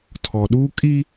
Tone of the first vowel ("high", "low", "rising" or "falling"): low